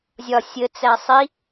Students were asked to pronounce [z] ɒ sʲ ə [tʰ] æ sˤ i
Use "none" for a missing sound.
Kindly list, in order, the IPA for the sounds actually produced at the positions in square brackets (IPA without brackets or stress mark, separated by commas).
zʲ, t͡s